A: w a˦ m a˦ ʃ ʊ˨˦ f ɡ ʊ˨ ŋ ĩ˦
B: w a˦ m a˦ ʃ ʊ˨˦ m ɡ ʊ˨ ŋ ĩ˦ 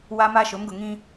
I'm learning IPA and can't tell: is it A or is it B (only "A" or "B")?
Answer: B